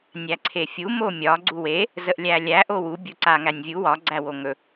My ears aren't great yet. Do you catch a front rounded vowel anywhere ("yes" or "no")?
no